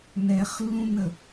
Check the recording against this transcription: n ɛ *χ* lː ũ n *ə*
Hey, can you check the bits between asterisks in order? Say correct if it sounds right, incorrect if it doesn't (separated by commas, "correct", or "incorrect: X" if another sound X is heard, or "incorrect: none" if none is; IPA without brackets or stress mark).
correct, correct